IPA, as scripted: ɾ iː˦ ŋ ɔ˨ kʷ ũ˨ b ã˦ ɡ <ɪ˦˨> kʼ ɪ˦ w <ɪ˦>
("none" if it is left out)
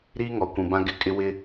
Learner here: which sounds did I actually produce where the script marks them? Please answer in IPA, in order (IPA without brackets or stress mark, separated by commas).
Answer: ɪ˦˨, ɪ˦